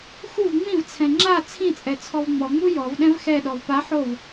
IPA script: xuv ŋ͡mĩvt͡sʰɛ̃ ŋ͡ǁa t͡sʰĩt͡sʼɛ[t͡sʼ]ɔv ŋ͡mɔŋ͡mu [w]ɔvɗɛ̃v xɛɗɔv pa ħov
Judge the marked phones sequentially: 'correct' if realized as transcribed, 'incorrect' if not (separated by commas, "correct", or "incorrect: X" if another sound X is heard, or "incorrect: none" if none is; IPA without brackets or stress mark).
incorrect: t͡sʰ, incorrect: j